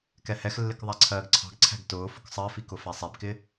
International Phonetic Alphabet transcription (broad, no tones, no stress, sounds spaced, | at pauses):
k ɛ h ɛ x lː ɪ k ðˤ æ ǀʰ ɜː ɡ ǀʰ ɑ̤ ɡ ǀʰ æ̤ ɡ t ʊː f ʊ k sˤ ɜ f i k ʊ f æ sˤ ɛ b k ɪ